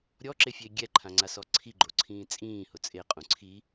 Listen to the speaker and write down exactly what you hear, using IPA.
ɾʲ ɔ ǁ e fʲ e ɡʲ ɛ ǃʰ ã ŋ͡ǀ a s ɔ ǀʰ i ɡ͡ǃ o ǀʰ ĩː t͡sʼ ĩː h ʊ t͡sʼ e qʼ ũ ǀʰ i

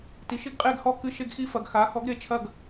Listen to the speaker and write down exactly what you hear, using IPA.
t i˨ ʃ i˦ ɡ qʼ e˦˨ ɡ h ɔ˦˨ k ɨ˦ ʃ e˦ ɡ x i˦ f ɐ˨ ɡ x a˨˥ x ɔ˨˥ ɡ ɾ e˨˥ t͡ʃʰ ɐ˦˨ ɡ

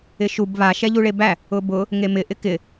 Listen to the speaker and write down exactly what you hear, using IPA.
ɪ ʃ u b β a ʃ ɛ ʎ u ɭ e b æ | ʊ b ʊ | ŋ e m ɪ ʔ ɪ k ɪ

